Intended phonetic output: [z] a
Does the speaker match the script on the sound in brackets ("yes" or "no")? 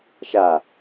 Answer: no